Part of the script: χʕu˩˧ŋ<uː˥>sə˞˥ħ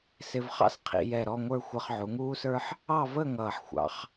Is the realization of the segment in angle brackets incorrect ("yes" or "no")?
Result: no